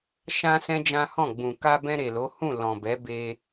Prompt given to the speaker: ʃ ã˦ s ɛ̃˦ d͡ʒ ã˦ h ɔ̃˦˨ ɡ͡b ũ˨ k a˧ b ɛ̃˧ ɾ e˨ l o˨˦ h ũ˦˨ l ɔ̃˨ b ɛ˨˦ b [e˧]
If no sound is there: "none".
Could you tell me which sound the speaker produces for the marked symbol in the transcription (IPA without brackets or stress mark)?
e˧